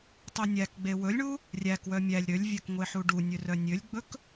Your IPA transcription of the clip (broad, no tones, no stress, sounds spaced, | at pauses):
tˤ ɛ nʲ æ k ɡ͡b e w ɵ lʲ ɳ u | rʲ æ k w œ mʲ æ lʲ ɾ ø lʲ vʲ œ k ŋʷ e ħ u ɖ u nʲ ø r œ nʲ ø lʲ ɡ͡b ɵ k